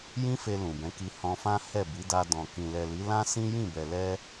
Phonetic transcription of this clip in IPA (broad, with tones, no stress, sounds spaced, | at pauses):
j ĩ˦ f e˧ l ũ˨ b ɛ̃˨˦ k i˧ h ɔ̃˧ f ã˦ h ɛ˦˨ b i˨˦ d a˧ d ɔ̃˨ k ĩ˨ l ɛ˨ l i˨˦ l ã˦ s ĩ˦ j ĩ˦˨ b ɛ˨ l ɛ˧